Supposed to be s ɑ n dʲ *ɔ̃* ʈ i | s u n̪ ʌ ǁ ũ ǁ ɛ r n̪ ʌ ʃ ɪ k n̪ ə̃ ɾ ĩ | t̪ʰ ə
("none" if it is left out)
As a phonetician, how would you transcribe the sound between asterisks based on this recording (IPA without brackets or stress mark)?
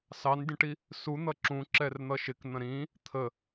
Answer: ə̃